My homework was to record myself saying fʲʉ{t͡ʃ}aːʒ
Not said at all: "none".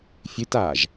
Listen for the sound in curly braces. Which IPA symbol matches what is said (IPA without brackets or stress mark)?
t